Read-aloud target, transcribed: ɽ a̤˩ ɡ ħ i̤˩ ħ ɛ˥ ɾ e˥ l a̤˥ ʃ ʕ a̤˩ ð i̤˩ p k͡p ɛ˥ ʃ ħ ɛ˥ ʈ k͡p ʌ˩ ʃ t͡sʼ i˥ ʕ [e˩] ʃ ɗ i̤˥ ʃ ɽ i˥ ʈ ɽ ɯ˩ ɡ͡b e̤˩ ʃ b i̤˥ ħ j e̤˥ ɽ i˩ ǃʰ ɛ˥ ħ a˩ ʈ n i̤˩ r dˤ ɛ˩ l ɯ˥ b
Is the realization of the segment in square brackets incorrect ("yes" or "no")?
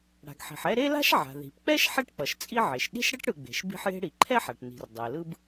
no